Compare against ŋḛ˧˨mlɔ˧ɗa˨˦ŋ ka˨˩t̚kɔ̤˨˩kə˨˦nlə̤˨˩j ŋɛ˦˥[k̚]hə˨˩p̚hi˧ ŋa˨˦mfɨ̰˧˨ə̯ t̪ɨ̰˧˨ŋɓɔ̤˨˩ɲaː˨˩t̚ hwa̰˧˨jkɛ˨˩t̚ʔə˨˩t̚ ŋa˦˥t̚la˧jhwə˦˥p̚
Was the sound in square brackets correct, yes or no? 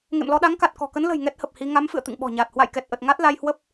no